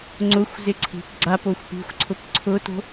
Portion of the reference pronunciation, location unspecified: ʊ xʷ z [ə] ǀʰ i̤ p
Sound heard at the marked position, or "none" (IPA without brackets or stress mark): ɪ